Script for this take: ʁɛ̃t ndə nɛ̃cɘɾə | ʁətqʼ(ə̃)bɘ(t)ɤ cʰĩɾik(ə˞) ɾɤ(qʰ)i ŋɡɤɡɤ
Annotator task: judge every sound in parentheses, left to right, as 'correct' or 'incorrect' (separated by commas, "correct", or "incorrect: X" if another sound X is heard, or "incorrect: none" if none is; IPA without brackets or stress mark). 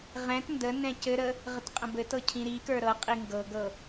correct, correct, correct, incorrect: qʼ